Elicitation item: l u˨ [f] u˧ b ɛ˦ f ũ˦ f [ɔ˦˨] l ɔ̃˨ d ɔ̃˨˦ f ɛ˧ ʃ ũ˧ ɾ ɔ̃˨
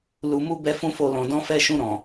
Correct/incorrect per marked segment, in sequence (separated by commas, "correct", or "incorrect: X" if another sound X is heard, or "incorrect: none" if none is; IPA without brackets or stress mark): incorrect: m, incorrect: o˦˨